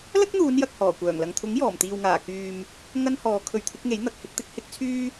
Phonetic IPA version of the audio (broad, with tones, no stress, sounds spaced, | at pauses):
l ɐ˥ k̚ n̪ uː˨˧ n j ɐ˨ k̚ h ɔː˨˩ kʷ œː˨˩ ŋ l ɐ˨ ŋ t̪ʰ ʊ˨˥ ŋ j ɔː˨˩ m t̪ iː˨ w ŋ aː˨˩ k yː˨ m | ŋ ɐ˥ n h ɔː˨˧ kʰ ɵ˨˧ ɥ t̪ʰ ɪ˨˥ k̚ ŋ e˨˥ j n̪ ɐ˨ k̚ h ɪ˧ k̚ t̪ ɪ˧ k̚ h ɪ˥ k̚ t͡sʰ yː˥